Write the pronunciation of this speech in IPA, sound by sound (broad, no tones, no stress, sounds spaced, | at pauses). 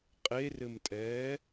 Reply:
qʼ e r ɘ m tʼ ɛː